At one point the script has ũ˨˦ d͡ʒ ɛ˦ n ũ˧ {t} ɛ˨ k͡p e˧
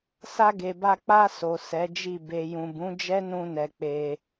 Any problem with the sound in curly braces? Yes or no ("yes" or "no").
yes